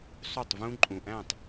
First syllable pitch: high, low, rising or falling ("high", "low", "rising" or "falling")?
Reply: falling